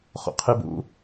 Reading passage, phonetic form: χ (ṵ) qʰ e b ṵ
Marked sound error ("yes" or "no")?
yes